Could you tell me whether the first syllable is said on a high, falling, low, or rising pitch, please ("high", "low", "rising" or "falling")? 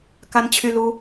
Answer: high